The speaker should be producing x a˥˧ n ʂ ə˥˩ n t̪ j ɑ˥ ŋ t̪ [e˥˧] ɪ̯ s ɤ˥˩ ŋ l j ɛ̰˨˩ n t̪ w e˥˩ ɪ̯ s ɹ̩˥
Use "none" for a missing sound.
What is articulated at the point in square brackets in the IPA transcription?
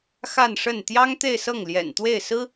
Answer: e˥˧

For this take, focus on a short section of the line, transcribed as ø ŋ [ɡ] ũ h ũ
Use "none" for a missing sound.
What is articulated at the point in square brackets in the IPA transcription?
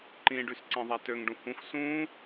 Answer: ɖ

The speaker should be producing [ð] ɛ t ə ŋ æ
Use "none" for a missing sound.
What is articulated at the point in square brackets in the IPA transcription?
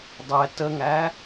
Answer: dˤ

